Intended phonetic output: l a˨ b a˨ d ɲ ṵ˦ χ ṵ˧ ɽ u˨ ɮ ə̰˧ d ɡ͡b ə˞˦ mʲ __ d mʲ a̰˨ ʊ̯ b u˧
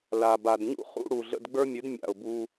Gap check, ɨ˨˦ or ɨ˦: ɨ˨˦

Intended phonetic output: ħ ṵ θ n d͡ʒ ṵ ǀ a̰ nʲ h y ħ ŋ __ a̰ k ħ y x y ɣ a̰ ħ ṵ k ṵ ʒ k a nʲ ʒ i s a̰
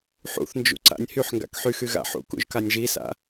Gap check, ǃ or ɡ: ɡ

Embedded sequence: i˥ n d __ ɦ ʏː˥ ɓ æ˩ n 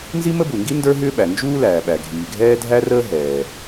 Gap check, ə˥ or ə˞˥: ə˞˥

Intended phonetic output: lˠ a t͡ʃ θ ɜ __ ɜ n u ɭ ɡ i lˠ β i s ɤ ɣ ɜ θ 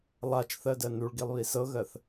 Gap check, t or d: d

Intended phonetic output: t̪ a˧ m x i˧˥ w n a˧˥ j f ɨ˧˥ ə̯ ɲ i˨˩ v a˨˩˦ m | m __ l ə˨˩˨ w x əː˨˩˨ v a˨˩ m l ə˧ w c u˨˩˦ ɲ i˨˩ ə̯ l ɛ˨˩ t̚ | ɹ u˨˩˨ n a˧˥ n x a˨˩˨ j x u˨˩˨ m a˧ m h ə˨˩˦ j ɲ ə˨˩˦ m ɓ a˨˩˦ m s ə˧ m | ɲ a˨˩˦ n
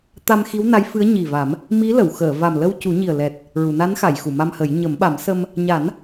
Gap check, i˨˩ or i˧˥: i˧˥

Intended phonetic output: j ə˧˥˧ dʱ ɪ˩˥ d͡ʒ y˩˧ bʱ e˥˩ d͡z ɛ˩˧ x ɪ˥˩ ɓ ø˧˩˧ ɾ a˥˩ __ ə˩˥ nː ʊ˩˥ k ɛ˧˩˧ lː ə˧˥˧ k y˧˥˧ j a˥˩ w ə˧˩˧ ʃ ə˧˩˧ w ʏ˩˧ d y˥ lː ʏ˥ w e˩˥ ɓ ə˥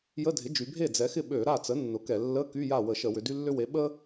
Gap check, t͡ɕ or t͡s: t͡s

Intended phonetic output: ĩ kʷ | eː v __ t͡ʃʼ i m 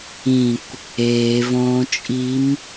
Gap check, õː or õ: õː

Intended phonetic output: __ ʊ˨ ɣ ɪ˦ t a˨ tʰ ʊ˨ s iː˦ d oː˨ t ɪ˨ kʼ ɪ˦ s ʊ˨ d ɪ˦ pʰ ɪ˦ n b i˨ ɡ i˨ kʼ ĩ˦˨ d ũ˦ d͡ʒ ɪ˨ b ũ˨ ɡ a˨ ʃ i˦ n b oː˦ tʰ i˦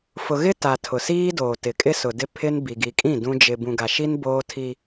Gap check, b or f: f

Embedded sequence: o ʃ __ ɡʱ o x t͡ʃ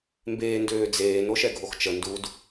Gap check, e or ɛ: ɛ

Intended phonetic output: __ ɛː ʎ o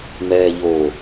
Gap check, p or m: m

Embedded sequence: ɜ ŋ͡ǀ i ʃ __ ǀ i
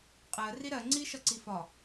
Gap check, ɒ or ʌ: ʌ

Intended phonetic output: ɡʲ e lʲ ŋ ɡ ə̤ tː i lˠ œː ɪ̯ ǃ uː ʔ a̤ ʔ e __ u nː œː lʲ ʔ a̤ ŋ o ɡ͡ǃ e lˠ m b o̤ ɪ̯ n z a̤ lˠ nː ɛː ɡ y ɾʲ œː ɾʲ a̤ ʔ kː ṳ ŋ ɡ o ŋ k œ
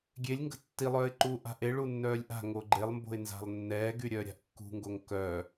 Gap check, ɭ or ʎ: ɭ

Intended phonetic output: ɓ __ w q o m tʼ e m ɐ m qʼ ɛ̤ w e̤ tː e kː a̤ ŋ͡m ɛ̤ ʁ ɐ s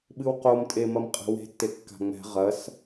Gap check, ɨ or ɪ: ɨ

